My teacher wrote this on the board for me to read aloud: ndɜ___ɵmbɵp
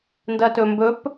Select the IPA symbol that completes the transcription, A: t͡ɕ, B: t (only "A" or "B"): B